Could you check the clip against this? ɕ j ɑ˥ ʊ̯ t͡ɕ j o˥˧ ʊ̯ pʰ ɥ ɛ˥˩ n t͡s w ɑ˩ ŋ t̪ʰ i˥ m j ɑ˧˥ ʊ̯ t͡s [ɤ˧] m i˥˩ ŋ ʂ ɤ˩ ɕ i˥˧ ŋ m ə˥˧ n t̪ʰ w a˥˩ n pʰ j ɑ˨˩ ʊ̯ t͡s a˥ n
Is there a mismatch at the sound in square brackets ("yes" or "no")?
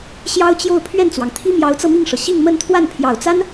no